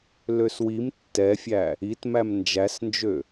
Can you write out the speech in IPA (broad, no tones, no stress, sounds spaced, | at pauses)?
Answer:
l ø s w i m tː ɛ fʲ æ | i t m æ m n d͡ʒ æ s n d͡ʒ ø